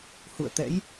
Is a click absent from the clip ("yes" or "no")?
yes